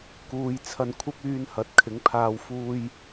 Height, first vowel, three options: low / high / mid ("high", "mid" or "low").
high